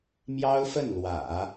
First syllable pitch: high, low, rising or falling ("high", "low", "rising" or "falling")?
high